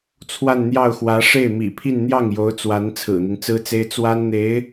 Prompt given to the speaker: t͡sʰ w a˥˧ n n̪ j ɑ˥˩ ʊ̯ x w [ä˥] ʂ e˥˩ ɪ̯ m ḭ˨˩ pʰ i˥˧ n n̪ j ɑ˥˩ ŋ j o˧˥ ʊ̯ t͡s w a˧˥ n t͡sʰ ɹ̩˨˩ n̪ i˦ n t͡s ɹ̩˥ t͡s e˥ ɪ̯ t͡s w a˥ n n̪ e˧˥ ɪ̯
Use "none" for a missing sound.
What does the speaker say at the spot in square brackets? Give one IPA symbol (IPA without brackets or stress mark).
ä˧˥